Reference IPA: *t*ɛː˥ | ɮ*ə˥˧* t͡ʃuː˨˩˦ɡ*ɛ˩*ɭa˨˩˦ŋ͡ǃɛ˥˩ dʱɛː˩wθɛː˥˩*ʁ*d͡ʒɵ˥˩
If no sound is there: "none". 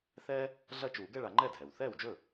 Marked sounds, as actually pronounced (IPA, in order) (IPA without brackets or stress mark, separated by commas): θ, ɐ˥˧, ɛ˥˧, w